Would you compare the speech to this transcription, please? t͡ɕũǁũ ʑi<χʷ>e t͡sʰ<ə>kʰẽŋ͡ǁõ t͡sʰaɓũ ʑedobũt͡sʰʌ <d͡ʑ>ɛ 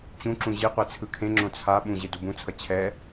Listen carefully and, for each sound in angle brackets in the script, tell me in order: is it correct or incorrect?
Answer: incorrect: qʷ, incorrect: ɯ, incorrect: t͡ɕʰ

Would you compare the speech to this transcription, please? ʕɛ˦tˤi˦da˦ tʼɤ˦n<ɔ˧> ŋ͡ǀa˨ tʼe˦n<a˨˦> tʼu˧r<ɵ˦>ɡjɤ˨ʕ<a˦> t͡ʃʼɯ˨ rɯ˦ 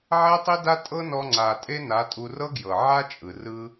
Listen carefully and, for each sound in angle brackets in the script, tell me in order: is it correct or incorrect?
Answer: correct, correct, incorrect: ɤ˦, correct

